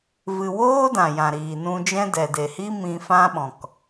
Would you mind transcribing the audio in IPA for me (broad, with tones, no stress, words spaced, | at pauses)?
vɨ˨woː˦ dã˨jã˨ ɾiː˨nũ˧d͡ʒɛ̃˦dɛ˨ de˨hi˦ mĩ˧fã˦ɓɔ̃˨k